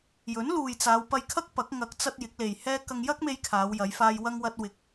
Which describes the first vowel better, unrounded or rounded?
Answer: rounded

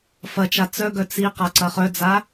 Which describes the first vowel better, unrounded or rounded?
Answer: unrounded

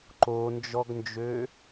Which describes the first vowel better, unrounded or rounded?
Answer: rounded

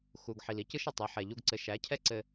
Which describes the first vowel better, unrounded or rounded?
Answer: rounded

